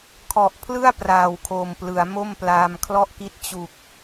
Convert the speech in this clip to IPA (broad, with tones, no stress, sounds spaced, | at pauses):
kʰ ɔ˨˩ ʔ pʰ l ɯ˥˩ a̯ p r aː˨˩ w kʰ o˨˩ m p l ɯ˩˦ a̯ m o˥˩ m p l aː˧ m kʰ l ɔ˥˩ ʔ k i˥˩ t̚ t͡ɕ u˨˩ k̚